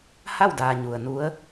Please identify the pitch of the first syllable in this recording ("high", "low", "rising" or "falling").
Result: falling